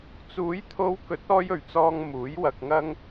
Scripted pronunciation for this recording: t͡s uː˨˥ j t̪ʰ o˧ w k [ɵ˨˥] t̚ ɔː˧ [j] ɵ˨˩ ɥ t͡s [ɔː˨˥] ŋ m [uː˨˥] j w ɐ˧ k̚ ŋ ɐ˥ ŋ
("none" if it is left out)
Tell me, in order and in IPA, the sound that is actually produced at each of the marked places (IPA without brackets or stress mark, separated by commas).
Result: ɵ˨˥, j, ɔː˨, uː˨˥